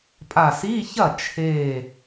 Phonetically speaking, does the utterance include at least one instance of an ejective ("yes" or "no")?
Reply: yes